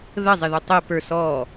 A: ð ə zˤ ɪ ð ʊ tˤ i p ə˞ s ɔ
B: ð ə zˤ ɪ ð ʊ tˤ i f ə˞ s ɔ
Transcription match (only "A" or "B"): A